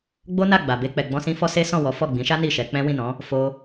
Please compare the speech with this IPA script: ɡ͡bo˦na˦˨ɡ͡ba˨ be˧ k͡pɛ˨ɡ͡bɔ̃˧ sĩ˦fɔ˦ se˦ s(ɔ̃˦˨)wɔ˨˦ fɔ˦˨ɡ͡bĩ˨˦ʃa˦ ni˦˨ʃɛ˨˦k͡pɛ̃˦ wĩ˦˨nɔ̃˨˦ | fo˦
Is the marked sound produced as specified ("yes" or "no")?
yes